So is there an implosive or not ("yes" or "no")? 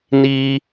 no